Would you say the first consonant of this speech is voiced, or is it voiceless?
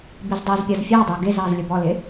voiced